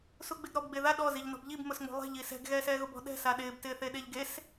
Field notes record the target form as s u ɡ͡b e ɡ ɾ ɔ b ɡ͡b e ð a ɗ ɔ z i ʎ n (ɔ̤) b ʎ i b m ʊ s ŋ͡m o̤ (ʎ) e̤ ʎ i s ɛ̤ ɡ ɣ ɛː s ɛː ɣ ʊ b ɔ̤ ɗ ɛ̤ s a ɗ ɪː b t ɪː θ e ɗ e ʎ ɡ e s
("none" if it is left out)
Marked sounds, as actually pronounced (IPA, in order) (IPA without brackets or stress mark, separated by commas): ɔ̤, lˠ